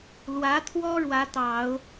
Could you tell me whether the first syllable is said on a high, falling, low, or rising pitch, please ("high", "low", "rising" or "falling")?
rising